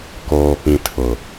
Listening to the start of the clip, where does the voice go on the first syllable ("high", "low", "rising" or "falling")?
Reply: low